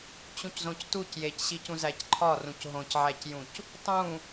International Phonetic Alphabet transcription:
t͡ɕ ũ c z õ c t u c j e c ɕ i c ũ z æ c ǃʰ ɒ r ũ c ɦ õ c ʕ æ c j ũ c | tˤ ũ

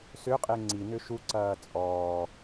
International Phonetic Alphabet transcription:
s ʏ qʼ e ŋ͡ǀ i n ʏ ʃ u ǀ ɐː t͡sʼ ɔː

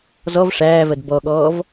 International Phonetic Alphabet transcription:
z ɔ v ʂ æː v ɜ d b ɔ ɠ ɔː v

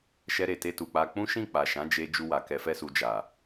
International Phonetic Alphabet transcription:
ʃ ɛ˧ ɾ e˨ t e˧ t u˨ k͡p a˧ k͡p ũ˦ ʃ ĩ˦˨ k͡p a˨ ʃ ã˨˦ d͡ʒ e˧ d͡ʒ u˧ w a˨ k ɛ˧ f ɛ˦ s u˧ d͡ʒ a˨

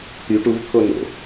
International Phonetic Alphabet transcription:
t̪ y ʈ u v t̪ʰ o n o̰

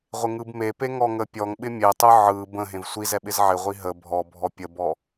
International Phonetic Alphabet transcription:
ʁʷ ɪ ŋ ɯ b m e p e ŋ ɔ ŋ ə pʲ ɔ ŋ ɓ ɪ mʲ e tˤ ɯ ʕ ɯ b ə̃ ɦ ẽ v sʷ i z ɛ ɓ ɪ z ʕ ɪ ʁʷ i ɦ ə bʱ ɔ bʱ ɔ pʲ ə b ɔ

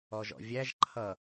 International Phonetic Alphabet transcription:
ɔ ʒ ɔ̰ vʲ æ ʒ ǃʰ ʌ

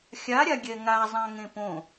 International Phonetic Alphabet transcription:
xʲ a ɾʲ a ɡʲ ɛ ŋ a zˤ ã ŋ ẽ p õ

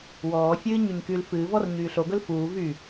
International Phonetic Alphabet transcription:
w ɔː fʲ ɨː ɲ y ɲ k y l f ɨː v ɔ r ɲ yː ɬ o ɡ ɵ l f uː v y

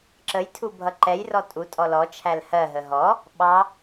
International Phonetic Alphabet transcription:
ǁ ə j tʰ u bʱ ʌ ǃ ɛ j r ɔ tʼ u tʼ ɔ l ɔ t͡ʃʰ æ l h ɜ ɦ ə ɦ ɔ | ɓ ɑ

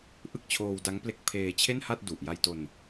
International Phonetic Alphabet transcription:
ʔ ɯ˥˩ k̚ t͡ɕʰ oː˧ w d a˦˥ ŋ p l e˦˥ k̚ pʰ eː˧ t͡ɕʰ e˥˩ n h a˥˩ t̚ d u˨˩ ʔ j a˧ j t o˧ n

